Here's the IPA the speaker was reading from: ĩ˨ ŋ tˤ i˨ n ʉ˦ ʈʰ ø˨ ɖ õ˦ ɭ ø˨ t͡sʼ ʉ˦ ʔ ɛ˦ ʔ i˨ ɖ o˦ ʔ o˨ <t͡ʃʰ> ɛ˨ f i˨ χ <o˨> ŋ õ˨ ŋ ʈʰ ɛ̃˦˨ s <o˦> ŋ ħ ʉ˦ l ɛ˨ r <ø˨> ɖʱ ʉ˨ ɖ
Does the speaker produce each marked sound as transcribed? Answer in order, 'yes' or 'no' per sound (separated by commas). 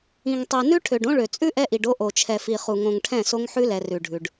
yes, no, yes, no